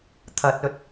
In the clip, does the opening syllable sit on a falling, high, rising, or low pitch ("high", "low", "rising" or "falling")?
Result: low